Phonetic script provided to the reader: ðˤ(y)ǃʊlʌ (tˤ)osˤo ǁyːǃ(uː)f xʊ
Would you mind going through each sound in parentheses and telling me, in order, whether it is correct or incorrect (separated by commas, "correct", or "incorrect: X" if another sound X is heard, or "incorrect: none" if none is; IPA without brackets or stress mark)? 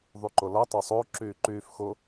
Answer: correct, correct, incorrect: yː